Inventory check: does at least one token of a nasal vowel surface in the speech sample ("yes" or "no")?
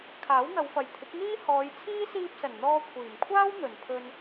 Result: no